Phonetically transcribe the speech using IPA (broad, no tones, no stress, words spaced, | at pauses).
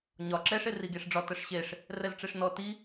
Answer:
ɲɒ ǁɛʂ eriɡeʂɖ͡ʐɒ təʂɕeʂ | rɛzʈ͡ʂeʂnɔ ti